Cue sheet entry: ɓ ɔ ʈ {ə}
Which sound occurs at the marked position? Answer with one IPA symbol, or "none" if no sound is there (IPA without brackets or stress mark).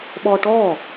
ɔ